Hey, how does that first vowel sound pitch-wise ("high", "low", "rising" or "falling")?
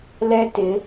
high